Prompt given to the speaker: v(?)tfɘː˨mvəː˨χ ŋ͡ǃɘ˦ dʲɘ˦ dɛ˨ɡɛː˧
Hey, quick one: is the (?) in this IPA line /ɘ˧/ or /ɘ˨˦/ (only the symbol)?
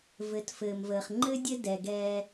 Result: ɘ˨˦